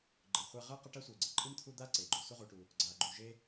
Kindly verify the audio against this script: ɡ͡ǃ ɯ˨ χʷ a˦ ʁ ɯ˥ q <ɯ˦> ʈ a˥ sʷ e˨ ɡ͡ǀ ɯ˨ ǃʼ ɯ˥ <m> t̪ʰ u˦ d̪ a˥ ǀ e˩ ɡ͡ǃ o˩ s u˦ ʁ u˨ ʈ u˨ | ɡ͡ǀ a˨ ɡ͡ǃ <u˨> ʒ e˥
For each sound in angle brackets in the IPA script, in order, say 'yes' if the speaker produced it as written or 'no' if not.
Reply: yes, yes, yes

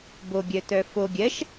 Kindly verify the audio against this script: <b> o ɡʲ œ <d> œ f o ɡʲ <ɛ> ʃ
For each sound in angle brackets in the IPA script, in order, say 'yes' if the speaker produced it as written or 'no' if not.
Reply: yes, no, no

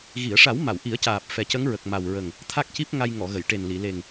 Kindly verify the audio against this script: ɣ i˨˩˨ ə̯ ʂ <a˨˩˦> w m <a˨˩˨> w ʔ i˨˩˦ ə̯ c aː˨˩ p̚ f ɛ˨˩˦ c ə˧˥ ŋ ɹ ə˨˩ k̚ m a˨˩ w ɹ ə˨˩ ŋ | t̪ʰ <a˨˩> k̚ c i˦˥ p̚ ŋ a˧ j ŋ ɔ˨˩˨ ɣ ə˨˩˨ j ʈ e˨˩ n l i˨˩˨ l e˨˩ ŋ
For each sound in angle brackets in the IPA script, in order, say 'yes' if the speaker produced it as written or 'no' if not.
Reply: yes, yes, no

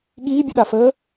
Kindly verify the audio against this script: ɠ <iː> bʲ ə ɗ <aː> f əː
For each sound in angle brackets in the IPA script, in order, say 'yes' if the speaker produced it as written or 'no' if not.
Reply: yes, no

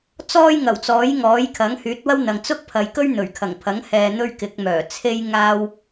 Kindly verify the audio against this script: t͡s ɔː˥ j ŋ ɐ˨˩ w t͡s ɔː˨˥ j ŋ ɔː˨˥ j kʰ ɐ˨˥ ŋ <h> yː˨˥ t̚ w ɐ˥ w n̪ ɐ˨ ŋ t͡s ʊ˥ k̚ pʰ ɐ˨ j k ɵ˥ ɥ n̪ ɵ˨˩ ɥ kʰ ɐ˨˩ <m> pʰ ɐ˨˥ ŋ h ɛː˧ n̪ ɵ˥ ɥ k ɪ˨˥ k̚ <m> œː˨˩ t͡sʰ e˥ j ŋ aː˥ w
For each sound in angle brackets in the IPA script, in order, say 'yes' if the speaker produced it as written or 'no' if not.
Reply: yes, no, yes

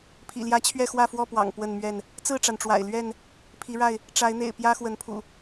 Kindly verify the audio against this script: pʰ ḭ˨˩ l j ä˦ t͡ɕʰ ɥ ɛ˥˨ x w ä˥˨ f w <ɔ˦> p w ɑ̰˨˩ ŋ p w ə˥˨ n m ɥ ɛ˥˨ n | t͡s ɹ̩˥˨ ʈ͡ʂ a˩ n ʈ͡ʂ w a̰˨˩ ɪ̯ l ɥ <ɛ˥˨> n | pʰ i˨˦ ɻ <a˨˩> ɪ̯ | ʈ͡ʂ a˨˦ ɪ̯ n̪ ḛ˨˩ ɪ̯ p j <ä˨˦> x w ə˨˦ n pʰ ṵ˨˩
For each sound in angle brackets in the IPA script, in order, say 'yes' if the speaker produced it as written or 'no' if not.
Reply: no, yes, no, no

